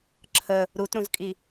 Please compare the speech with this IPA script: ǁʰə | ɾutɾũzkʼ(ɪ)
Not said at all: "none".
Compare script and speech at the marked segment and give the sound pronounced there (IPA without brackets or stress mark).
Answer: i